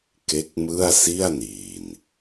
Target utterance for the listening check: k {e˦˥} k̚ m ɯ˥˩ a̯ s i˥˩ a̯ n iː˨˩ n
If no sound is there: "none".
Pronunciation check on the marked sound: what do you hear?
e˦˥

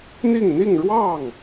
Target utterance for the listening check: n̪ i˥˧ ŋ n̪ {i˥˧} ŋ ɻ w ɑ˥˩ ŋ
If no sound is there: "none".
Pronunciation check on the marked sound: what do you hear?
i˥˧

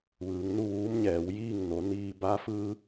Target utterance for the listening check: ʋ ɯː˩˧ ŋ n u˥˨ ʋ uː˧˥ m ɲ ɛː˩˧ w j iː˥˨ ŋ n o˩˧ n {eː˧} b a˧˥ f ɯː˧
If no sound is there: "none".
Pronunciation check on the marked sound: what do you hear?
iː˧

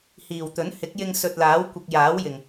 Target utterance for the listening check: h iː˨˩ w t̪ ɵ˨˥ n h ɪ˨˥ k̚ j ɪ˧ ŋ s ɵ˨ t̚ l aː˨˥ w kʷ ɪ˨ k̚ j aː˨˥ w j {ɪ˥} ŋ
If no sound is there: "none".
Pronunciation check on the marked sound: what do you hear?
ɪ˨˩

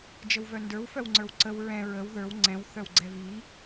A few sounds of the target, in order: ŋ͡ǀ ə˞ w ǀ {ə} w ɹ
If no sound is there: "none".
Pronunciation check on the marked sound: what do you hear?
ə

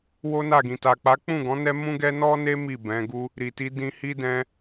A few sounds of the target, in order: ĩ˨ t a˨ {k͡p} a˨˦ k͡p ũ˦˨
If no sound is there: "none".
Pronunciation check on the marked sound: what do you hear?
k͡p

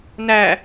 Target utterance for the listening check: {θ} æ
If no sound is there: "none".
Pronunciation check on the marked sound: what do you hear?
n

